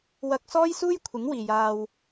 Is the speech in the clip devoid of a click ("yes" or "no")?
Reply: yes